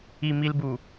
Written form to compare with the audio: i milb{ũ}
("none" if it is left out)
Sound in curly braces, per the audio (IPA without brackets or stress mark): u